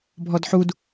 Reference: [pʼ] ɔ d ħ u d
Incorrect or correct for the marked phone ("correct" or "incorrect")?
incorrect